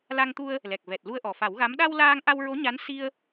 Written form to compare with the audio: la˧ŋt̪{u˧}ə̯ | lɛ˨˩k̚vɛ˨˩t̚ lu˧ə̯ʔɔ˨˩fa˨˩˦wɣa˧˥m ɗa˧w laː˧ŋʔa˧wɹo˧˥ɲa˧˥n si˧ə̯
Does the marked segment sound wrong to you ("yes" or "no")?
no